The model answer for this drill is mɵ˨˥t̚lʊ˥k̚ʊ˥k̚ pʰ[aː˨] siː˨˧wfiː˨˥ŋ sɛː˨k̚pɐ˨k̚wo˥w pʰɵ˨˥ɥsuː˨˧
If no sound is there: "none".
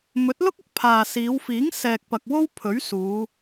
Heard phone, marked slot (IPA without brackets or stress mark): aː˨